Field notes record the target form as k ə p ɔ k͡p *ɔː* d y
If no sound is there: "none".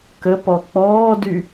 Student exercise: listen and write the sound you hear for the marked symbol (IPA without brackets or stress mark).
ɔː